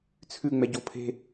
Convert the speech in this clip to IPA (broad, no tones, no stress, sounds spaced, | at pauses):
t͡sʰ ʉ ŋ͡m ɛ ɟ o pʰ e̤